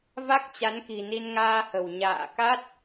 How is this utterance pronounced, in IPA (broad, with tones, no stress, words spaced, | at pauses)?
va˦˥k̚t͡ɕa˨˦nki̤˨˩ni˧n ŋaː˧hə̤˨˩w ɲa̰ː˧˨ka˦˥t̚